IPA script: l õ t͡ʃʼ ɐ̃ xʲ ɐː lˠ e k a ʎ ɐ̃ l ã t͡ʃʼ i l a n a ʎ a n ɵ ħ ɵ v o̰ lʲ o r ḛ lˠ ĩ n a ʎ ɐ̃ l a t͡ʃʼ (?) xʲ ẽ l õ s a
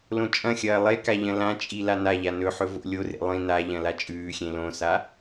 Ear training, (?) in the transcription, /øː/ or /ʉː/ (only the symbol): ʉː